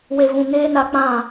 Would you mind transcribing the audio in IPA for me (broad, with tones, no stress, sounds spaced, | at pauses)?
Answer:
w e˧ v ũ˧ ŋ eː˦ n a˦ k͡p ã˦˨